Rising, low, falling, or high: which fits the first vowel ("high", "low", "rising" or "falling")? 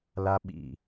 high